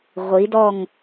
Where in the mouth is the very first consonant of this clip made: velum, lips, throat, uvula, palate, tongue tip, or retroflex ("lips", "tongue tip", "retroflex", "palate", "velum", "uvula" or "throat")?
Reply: uvula